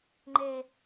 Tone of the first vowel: high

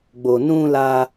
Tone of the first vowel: low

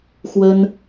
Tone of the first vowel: high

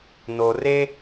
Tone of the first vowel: low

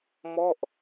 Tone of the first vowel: falling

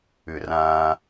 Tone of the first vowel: low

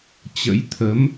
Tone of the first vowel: rising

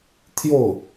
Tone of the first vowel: falling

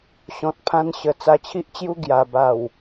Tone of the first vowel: low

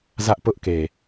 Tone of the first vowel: high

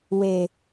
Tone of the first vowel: low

